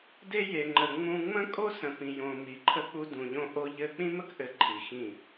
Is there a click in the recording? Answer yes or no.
yes